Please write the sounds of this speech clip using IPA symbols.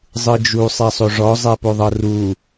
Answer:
zˤɯd͡ʒu sˤɛsˤoʐɔ zˤɛpoðˤɤru

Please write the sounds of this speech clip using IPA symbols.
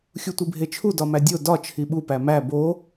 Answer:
xʲutʷibʱet͡ʃʰu dɒmædʲo dɒ t͡ʃʰiɓu pæmæ bo

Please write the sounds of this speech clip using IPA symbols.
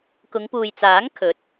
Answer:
kʊ˨˧ŋpuː˨jt͡saː˨˥ŋ kʰɵ˨˥t̚

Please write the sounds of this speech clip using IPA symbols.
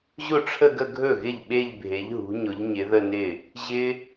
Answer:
ʑʊ˥˩ʈ͡ʂʰə˥˧ɡə˥˧ ɡʱɵ˥˩ɣɪ˥˩ʎ ɓe˥˧ʎbʱe˨˦ʎɦṳ˨˦ɲʊ˨˦ʎ ɲɪ˨˦ðə˥˧nɪ˥˩ | ʑɪ˦˥

